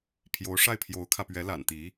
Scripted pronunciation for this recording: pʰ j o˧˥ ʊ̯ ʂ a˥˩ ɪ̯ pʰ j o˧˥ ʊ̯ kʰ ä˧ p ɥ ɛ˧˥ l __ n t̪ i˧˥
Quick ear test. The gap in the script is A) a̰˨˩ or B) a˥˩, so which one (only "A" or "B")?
A